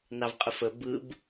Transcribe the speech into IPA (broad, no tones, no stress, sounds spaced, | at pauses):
n ɑ v qʼ ə f ə b ɯ b